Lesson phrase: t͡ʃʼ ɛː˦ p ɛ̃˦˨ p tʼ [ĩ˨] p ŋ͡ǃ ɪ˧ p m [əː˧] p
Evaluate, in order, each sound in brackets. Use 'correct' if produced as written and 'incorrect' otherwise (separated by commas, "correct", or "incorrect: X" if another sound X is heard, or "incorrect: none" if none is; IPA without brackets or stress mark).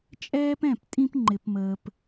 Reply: incorrect: ĩ˦, correct